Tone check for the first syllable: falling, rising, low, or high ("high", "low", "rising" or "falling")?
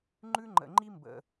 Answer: high